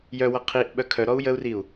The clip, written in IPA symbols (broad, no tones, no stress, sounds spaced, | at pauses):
j œ w ʌ qʰ i ʔ ɓ œ kʰ œ ɾ ɔ u̯ j ə u̯ r i u̯